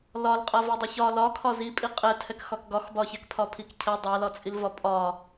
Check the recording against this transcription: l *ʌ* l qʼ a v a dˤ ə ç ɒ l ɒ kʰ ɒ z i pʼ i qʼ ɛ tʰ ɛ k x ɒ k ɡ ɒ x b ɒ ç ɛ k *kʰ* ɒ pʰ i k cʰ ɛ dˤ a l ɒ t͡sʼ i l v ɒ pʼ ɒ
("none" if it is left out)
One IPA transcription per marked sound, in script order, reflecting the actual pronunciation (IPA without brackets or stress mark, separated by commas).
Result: ɒ, pʰ